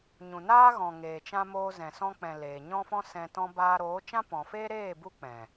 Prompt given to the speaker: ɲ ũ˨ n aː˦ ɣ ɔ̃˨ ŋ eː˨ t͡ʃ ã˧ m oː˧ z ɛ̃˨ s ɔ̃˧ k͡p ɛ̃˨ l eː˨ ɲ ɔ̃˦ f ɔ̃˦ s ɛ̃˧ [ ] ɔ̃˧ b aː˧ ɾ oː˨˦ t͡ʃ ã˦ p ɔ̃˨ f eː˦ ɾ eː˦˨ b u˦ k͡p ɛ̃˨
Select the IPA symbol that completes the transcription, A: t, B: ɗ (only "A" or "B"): A